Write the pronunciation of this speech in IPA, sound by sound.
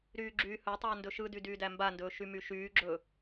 ɾyːɡ͡ǁyːhɵtˤɵː ndɵʃɯdy dyːdæmbandɵː ʃymyʃyːɡ͡ǁɵ

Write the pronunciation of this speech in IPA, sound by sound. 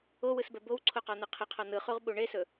owɯsbɛ bowǀʰoqɔn̪ɯ qʰəqʰɔ n̪ɯχuʁɓu ɳesɵ

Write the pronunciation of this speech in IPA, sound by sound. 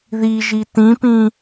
ðiʒi tĩpĩ

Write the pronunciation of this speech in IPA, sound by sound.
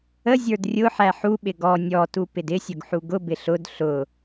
əzʲə˞d rʲʊ ħæħuɓɪ ɡɔ nʲɔtu pɪdɪsʲʊɡ ħuɡʊbɪ ɬʊd ɬʊ

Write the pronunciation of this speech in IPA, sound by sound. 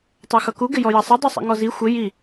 tˤɛxʌku ɡɪjɔjʌsˤɪ dˤusˤɛ̰ŋɔzi xʷɪ ji

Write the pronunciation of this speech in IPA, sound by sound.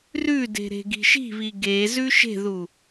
rʉde̤ ɾe̤ɡi̤ʃi̤βi ɡe zʉʃe̤ðu

